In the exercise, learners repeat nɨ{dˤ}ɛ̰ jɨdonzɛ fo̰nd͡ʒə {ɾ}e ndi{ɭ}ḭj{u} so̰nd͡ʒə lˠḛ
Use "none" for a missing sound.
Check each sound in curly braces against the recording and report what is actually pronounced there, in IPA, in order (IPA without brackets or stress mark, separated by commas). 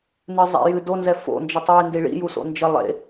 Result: zˤ, tˤ, ɭ, u